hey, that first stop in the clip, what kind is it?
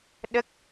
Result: implosive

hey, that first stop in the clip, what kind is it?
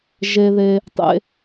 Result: plain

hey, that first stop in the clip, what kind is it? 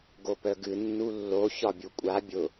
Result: plain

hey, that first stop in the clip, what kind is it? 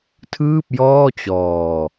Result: aspirated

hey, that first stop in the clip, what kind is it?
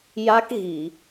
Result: plain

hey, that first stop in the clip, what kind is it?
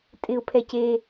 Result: ejective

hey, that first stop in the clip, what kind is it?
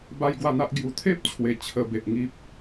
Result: plain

